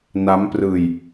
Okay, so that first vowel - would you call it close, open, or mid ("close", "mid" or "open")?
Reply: open